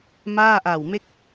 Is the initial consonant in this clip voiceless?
no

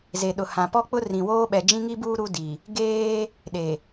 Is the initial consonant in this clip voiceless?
no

